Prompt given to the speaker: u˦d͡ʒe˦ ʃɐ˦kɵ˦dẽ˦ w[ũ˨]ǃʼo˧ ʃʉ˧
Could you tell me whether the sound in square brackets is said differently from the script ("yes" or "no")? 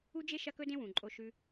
no